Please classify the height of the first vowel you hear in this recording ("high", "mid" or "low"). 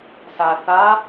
low